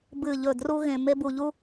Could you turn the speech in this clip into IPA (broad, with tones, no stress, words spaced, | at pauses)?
bɨ˨ʎɵ˨ dru˧ɣẽ˨me˧ bu˧ʎu˦